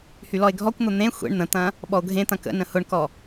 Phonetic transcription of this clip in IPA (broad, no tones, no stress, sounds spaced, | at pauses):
h y l ɔ e̯ ɡʱ ɔ kʷ n̪ ʊ n̪ ẽ xʷ ḛ ɳ n̪ ə̃ t̪ ɐ̃ | ɓ ɔ o̯ ɡʱ ẽ t̪ ɐ̃ k ə̰ n ə̃ h ʊ ɳ k ɔ